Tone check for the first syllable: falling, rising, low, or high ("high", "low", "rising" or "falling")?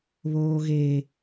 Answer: high